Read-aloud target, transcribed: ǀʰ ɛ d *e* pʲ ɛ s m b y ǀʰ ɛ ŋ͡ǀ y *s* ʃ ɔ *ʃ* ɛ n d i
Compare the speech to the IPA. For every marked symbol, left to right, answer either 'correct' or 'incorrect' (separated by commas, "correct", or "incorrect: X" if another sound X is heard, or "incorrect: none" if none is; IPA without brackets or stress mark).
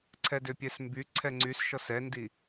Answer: incorrect: ø, correct, incorrect: s